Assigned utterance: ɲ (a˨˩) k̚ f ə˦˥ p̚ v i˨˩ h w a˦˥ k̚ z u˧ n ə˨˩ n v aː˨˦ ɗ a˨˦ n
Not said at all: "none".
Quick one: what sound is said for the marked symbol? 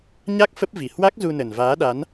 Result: a˦˥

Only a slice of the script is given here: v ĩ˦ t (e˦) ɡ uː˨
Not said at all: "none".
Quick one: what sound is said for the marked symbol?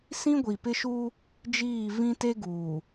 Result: e˦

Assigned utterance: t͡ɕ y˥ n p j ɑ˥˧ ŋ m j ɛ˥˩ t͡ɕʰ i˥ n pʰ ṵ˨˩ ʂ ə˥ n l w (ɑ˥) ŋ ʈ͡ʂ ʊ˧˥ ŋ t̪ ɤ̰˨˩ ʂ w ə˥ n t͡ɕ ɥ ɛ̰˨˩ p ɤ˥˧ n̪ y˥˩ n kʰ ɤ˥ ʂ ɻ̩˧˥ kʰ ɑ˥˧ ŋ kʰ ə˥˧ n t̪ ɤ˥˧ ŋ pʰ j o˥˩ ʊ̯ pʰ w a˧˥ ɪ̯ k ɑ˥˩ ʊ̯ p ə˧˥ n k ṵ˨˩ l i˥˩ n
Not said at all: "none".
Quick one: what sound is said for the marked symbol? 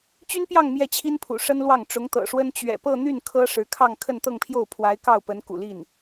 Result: ɑ˥˩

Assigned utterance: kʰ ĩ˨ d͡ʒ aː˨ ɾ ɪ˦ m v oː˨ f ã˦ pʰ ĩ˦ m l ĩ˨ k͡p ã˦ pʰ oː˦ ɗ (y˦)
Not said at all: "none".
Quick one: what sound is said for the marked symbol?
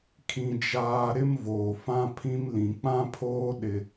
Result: ɪ˦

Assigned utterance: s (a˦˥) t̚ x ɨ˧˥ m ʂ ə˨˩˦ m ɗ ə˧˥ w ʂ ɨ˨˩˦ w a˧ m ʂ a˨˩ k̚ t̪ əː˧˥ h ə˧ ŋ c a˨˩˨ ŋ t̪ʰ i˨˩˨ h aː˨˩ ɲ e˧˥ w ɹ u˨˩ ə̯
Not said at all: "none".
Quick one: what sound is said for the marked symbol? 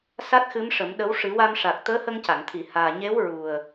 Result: a˦˥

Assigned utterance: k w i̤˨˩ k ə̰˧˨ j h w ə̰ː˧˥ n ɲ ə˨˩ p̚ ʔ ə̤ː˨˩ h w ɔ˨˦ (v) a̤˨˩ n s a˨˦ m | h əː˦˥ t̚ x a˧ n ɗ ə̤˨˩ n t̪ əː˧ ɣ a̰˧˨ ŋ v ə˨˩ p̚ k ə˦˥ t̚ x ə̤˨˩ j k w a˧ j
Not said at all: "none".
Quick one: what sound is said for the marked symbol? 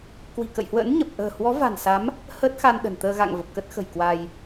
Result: v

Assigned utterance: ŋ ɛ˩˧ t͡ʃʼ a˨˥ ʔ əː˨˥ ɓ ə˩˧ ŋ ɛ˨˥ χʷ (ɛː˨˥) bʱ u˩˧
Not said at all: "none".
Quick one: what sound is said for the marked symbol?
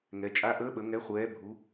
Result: ɛː˨˥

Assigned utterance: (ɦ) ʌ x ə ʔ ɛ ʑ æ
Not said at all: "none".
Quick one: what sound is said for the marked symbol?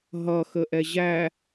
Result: ɦ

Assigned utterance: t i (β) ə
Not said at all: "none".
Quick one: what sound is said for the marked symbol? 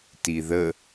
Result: ð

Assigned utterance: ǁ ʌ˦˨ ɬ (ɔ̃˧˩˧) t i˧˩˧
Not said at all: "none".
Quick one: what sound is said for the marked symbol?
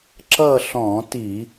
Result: ɔ̃˧˩˧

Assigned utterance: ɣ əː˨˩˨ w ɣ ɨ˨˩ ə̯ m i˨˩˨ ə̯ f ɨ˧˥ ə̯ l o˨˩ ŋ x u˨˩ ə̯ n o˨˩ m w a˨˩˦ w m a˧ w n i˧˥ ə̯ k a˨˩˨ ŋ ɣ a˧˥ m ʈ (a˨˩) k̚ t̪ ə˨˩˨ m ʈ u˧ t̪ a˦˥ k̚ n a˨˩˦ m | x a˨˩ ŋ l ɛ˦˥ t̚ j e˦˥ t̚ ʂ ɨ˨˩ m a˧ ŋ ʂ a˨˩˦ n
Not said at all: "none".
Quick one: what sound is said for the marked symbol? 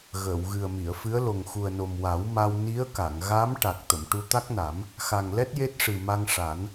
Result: a˨˩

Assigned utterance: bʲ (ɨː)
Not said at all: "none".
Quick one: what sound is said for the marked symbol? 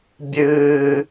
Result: ɨː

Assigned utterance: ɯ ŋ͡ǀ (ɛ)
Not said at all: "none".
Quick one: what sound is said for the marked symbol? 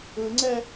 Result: ɛ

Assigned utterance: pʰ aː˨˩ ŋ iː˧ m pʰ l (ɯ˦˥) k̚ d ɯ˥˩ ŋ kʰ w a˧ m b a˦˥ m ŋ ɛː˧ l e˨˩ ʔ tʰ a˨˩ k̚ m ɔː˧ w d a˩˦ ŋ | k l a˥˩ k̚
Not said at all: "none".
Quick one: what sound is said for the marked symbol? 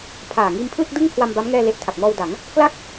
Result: ɯ˥˩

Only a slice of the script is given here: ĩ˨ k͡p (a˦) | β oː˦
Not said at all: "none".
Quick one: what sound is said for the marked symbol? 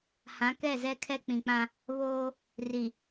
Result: ã˦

